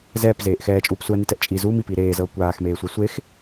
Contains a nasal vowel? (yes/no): no